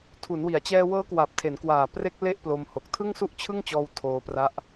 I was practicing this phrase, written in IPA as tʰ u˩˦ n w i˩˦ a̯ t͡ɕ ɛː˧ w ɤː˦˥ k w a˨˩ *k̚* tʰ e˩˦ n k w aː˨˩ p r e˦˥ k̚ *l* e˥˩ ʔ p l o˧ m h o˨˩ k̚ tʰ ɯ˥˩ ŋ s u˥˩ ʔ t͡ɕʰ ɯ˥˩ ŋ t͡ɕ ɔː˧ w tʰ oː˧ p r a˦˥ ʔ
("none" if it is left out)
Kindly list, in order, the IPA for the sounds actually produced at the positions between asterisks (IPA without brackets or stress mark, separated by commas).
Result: p̚, l